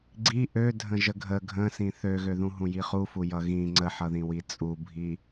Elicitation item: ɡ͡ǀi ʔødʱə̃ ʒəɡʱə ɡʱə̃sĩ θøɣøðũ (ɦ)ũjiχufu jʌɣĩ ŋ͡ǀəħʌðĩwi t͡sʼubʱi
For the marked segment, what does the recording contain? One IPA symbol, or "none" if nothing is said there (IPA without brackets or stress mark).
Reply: ɦ